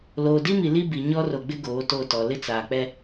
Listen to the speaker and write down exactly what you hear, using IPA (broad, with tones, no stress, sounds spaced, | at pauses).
l oː˨ d i˦ m i˨ l i˦ b i˨ ɲ ɔ˦ r o˨ ɡ͡b ɪ˦ ɡ oː˨˦ t o˦˨ t ɔ˨ l ɪ˦ t͡s aː˨ k͡p ɛ˦